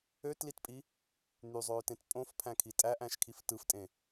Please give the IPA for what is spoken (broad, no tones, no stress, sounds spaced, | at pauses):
ø t l i t pʼ i | n̪ y zˤ øː t ẽ t pʼ õ f pʰ æ̃ kʰ i tʼ æ ʔ æ̃ ʃ kʰ i f t ɯ f tʼ ẽ